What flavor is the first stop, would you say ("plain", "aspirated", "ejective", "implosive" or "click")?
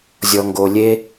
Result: plain